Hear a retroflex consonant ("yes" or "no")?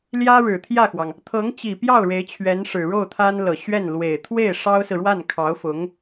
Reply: yes